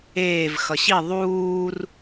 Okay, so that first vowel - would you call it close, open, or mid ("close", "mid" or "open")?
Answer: mid